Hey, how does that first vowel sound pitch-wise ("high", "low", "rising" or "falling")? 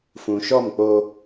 low